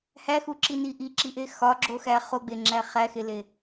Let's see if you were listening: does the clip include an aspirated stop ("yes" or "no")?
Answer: no